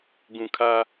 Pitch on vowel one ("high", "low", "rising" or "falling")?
low